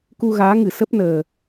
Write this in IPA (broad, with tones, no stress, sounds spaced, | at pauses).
k u˧ ɣ aː˨˦ ŋ ɨ˧˩ s ə˦˥ p̚ n əː˨˩